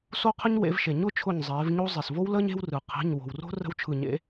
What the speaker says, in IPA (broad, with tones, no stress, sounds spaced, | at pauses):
s o˦ qʰ ə˦ ɲ w ḛ˩˧ v ʃ e˩ ɲ ʊ˥˨ t͡ʃʰ ʊ˧˩ ɲ zˤ eː˩˧ v ɲ o˦ zˤ e˩ s v o˦ w l əː˦ ɲ e̤˦ w r ɯ˩ qʰ e̤˩˧˩ ɲ w o̤˩ w r o̤˦ r ə̤˦ w t͡ʃʰ ɯ˧˩ ɲ ḛ˦